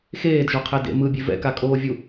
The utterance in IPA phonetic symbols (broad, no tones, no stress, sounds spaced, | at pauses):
x eː d ʒ o qʰ ɛ d ḛ m ɯ bʲ e v ɛ̰ k a kʼ oː vʲ u